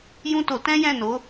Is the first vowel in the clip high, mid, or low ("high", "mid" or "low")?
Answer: high